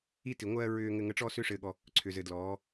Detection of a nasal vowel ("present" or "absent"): absent